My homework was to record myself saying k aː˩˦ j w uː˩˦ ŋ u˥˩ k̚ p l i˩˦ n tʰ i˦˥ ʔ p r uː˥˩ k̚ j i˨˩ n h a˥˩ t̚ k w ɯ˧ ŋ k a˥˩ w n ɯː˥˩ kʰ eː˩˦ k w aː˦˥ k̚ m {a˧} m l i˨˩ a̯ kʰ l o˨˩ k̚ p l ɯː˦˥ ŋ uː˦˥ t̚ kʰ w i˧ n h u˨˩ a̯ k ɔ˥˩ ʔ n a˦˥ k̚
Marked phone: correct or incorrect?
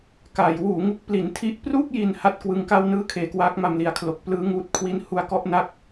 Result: correct